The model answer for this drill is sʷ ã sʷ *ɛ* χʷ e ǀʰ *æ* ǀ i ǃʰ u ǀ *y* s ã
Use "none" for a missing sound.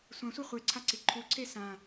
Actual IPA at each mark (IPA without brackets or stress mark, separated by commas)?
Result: ɛ, a, e